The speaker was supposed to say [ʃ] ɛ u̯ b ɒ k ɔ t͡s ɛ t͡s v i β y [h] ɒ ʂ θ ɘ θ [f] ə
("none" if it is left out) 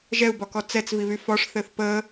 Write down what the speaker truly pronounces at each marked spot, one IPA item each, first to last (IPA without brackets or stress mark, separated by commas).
ʒ, f, p